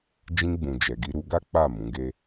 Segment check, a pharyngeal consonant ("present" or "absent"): absent